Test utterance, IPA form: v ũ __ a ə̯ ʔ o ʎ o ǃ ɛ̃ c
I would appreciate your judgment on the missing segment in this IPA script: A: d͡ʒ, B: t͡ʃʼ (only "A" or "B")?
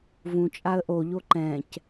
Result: B